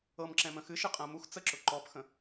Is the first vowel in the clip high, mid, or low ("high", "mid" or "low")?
mid